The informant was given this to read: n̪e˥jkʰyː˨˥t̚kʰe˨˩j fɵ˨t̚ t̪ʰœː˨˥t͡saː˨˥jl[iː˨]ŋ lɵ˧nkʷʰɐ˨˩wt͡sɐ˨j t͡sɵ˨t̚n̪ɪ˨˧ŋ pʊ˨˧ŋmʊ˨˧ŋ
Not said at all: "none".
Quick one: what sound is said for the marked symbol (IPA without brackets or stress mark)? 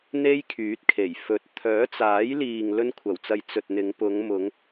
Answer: iː˨